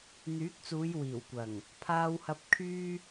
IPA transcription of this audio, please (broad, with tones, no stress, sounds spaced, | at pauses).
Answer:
n̪ yː˨˥ k̚ t͡s uː˨˧ j w iː˨˩ w kʷ ɐ˨˩ ŋ | pʰ aː˧ w h ɐ˧ p̚ kʰ yː˥